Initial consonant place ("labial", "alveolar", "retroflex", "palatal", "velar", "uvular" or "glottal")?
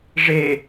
retroflex